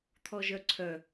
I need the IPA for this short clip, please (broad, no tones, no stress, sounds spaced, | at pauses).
t̪ʰ ɔ ʒ œ ǀʰ œ